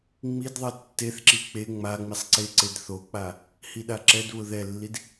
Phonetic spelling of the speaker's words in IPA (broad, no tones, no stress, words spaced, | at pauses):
ŋ͡midðˤɛ tːeθǁi k͡pe ŋ͡ma ŋ͡misˤǀeǀed θok͡pa | hiɗaǁɛdβʊ ðɛlːid